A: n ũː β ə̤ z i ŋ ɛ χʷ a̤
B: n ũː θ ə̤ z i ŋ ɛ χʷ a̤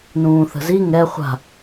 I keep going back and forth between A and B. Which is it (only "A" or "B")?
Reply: B